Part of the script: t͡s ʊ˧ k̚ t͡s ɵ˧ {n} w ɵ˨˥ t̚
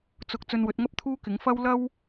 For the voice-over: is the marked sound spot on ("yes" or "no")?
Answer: yes